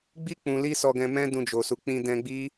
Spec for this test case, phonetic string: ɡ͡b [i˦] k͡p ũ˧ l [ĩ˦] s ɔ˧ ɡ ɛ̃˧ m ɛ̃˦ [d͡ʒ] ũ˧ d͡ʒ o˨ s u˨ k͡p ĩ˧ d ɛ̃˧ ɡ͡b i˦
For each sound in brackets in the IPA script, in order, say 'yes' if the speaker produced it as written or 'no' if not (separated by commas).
yes, no, no